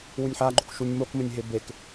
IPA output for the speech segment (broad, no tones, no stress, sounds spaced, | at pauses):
w u nʲ ħ a ɡ͡ǃ o k ʃ u nʲ m o k m ɘ nʲ ɦ e b e k